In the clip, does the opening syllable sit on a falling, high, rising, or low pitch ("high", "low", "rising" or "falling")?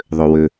low